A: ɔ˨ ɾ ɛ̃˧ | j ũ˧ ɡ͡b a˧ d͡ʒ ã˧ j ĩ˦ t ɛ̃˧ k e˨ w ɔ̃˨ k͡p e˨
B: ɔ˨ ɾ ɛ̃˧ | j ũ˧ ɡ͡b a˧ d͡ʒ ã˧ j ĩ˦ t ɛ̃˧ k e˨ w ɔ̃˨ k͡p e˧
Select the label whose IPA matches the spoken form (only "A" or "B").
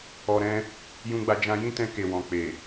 A